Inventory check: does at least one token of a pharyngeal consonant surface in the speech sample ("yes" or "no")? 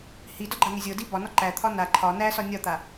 no